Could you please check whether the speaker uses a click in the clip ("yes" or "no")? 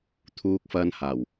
no